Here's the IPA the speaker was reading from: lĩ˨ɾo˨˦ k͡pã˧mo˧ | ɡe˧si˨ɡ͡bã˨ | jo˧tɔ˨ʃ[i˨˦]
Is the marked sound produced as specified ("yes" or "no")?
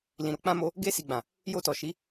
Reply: yes